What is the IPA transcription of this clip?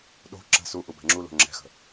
ɗ o̤ ǁ ə̤ s u ʔ u b ɛ̤ ŋ͡ǁ u l o̤ ŋ͡ǁ ɛ̤ x ə̤

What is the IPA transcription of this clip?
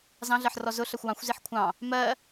z ɑ̃ ɮ ɜ ħ r ɔ z ʊ ɬ ɜ xʷ w ɑ̃ xʷ z i ħ kʷʰ ɑ̃ | m ɜ

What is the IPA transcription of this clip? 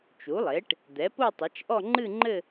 t͡ʃ u˩˥ lˠ e˩˥ ʈ | d̪ ɛ˩˥ p o˥˧ tˤ ɐ˩˥ t͡ʃ ʔ ɔ˥˧ ŋ͡ǃ ɨ˥˧ ŋ͡ǃ ɘ˥˧

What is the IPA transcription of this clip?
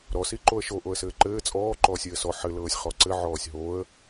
ɾ ɔ s i ǃ o ə̯ ʃ o ʔ o ə̯ s ɘː ǃ ɘː t͡sʼ ɔː ǃ ɔː sʲ ɘː s ɔ ħ ɘ l ɤː sʲ χ ɔ ǀ ɘ ʕ ɔː sʲ ɦ o ə̯

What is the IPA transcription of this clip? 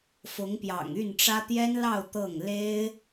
f ʊ˧˥ ŋ p j ɑ̰˨˩ ŋ y˥˩ n ʈ͡ʂ ä˥ t̪ j ɛ˥ n l ɑ˥˧ ʊ̯ t̪ ɤ˥˩ ŋ l e˥ ɪ̯

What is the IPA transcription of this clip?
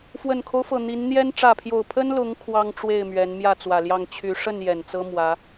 f w ə˨˩ n kʰ o˦ ʊ̯ f ɤ˨˩ n̪ i˨˦ n n̪ j ɛ˦ n ʈ͡ʂ ä˥˨ pʰ j o˥˨ ʊ̯ pʰ ə˦ n l ʊ˨˦ ŋ kʰ w ɑ˦ ŋ ʈ͡ʂ w e˥˨ ɪ̯ m ɥ ɛ˨˦ n m j ä˥˨ t͡s w ä˨˩ l j ɑ˥˨ ŋ t͡ɕʰ y˨˦ ʂ ə˥˨ n j ɛ˨˩ n t͡s ɤ˦ m w ä˨˦

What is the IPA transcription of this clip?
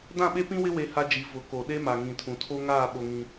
d ã˦˨ ɓ e˦ p ĩ˦ w ɪ˦ w e˦ h a˦ d͡ʒ i˨˦ v ʊ˨˦ k o˨ ɗ e˦ m a˨ ŋ ĩ˨ tʰ ũ˨ tʰ o˦ ŋ aː˦˨ ɓ o˦ ŋ ĩ˦

